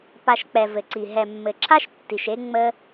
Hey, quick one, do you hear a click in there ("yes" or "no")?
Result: yes